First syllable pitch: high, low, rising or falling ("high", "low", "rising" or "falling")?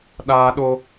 high